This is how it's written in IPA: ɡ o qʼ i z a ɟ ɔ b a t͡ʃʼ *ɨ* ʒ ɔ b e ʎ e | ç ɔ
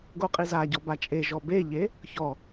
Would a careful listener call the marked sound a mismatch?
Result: yes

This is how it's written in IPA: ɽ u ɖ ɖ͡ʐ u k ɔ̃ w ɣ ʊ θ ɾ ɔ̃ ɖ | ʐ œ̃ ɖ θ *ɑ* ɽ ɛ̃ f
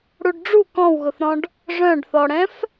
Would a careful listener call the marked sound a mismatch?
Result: yes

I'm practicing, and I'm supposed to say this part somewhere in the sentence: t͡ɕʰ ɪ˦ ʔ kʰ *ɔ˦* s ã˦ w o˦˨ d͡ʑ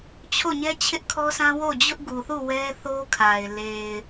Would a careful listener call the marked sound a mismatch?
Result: no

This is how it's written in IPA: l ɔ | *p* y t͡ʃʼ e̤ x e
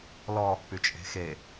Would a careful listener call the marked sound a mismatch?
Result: no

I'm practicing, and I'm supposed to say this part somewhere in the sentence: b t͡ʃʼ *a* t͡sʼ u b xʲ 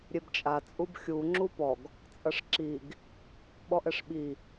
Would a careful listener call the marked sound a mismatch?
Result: no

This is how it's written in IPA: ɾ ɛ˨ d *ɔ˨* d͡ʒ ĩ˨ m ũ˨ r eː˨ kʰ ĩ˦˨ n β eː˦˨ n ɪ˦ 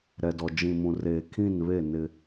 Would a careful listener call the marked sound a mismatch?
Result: no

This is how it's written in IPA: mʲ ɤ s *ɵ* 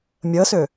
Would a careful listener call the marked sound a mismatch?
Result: no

